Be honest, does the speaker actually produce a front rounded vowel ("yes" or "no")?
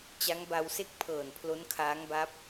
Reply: no